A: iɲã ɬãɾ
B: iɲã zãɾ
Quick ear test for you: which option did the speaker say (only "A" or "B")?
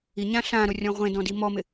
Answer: A